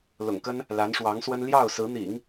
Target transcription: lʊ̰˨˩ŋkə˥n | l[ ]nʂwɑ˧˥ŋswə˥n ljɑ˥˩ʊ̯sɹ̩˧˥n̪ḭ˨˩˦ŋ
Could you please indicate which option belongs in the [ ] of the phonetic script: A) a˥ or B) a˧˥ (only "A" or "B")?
B